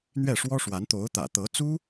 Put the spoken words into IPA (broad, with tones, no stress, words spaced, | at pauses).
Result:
n̪ɥɛ˥˩ʂwɔ˥ʂwa˧˥n t̪o˧˥ʊ̯ t̪ä̰˨˩t̪ɤ˧˥t͡su˥